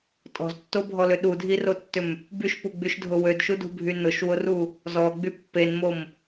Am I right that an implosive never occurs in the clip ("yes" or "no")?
no